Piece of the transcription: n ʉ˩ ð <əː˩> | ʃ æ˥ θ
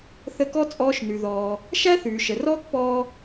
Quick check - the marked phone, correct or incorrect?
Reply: incorrect